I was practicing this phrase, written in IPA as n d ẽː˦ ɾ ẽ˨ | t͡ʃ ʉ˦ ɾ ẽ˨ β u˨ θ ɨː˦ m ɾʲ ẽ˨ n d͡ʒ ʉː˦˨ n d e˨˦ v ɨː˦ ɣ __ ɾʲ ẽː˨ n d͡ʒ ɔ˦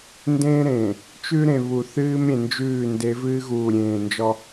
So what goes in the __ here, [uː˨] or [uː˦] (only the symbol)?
uː˨